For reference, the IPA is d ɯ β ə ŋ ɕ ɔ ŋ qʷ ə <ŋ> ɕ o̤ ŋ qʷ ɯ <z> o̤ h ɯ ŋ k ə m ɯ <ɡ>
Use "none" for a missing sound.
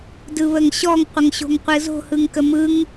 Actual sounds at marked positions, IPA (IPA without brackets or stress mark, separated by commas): ŋ, z, ŋ